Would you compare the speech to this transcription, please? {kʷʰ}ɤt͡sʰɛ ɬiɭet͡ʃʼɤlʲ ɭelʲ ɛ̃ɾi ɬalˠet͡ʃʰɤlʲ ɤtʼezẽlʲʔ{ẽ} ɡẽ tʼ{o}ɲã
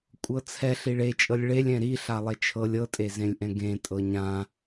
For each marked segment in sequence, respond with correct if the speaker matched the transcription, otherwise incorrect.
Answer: incorrect, incorrect, incorrect

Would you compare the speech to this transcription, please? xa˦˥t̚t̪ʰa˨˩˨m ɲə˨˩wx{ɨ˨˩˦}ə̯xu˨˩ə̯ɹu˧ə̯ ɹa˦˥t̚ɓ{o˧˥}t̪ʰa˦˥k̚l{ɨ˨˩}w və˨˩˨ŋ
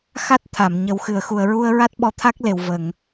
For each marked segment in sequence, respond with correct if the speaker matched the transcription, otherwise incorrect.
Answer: incorrect, incorrect, incorrect

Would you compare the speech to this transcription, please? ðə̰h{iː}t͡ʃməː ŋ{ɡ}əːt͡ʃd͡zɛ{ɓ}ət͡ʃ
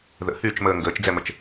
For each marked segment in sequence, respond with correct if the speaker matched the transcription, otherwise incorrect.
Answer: incorrect, correct, incorrect

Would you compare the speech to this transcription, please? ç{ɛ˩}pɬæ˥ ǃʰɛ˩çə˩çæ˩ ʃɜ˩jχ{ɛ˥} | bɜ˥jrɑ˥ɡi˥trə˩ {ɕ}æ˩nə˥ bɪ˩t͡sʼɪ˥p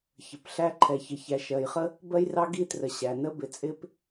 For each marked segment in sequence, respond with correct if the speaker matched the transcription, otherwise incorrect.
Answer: incorrect, incorrect, correct

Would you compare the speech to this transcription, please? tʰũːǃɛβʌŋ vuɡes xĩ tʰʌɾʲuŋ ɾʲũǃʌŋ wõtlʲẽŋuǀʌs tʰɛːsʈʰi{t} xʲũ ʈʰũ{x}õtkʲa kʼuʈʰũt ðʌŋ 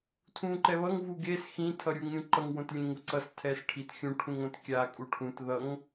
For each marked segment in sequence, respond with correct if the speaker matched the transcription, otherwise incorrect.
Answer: correct, incorrect

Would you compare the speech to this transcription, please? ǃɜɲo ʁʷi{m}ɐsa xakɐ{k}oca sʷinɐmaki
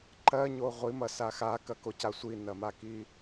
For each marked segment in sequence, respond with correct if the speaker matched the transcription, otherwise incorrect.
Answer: correct, correct

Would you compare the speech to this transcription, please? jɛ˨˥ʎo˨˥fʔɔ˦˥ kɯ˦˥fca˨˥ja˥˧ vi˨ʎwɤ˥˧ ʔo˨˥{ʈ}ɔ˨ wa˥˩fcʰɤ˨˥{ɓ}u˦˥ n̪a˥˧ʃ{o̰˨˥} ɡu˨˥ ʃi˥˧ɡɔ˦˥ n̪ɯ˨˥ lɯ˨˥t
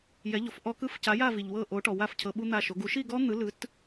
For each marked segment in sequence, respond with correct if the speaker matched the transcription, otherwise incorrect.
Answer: correct, correct, incorrect

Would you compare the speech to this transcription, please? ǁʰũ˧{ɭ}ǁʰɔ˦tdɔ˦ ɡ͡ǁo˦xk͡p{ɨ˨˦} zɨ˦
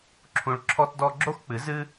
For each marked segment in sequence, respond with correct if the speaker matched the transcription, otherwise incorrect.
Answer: correct, correct

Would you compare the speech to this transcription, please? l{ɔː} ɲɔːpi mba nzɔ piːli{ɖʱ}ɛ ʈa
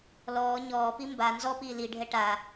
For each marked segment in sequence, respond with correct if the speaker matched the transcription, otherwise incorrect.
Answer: correct, correct

